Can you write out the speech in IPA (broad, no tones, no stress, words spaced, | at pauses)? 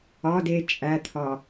ɒd e t͡ʃʼæt̪ʰɒ